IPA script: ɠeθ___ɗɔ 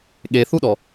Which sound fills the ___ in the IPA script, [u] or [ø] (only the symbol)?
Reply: u